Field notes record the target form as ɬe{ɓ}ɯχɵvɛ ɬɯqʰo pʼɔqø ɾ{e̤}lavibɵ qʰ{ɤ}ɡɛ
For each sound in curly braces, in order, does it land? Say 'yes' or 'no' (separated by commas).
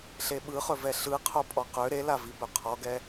yes, no, no